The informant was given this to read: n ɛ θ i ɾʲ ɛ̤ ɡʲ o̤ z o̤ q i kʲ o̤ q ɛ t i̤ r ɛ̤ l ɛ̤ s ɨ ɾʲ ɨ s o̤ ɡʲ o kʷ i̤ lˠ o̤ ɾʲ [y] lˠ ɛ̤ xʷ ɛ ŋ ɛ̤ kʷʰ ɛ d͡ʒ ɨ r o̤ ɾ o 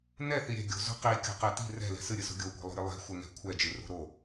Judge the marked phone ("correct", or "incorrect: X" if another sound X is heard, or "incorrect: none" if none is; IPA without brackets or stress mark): incorrect: ɨ